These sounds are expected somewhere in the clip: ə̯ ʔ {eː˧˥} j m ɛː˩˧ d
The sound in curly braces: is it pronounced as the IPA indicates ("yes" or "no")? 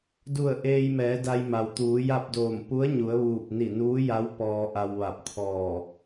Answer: no